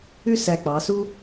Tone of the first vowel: falling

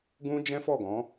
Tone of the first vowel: high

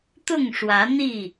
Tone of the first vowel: falling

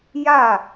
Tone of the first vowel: falling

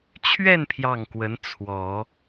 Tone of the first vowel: falling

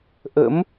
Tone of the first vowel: rising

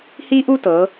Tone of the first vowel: high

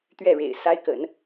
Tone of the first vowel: falling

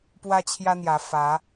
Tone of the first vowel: high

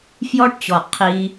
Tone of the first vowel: high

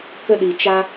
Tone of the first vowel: high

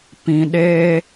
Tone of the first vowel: low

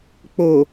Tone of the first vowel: low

